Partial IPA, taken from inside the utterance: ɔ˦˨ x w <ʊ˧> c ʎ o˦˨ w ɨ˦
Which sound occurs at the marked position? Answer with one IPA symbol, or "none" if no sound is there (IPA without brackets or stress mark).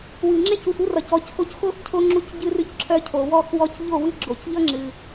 ɔ˧